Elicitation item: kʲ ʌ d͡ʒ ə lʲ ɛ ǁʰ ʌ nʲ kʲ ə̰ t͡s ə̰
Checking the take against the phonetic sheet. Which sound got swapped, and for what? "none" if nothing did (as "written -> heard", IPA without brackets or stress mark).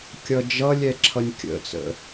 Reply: ə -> ʌ